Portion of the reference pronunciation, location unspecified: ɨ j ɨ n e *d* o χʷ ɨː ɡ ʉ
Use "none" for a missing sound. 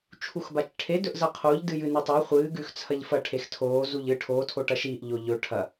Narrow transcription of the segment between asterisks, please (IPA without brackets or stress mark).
tˤ